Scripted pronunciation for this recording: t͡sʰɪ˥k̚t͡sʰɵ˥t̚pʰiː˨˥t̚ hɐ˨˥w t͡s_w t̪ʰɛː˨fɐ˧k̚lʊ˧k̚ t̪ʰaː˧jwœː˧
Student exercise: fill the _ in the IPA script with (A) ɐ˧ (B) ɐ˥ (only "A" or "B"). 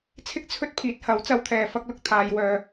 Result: A